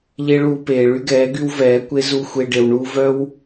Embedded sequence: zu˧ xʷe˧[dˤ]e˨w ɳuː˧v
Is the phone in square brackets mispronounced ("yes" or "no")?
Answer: yes